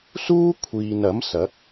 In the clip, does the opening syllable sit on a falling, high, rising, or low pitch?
high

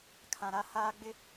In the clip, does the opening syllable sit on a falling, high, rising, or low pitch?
low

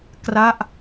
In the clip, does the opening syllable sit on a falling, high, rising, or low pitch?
falling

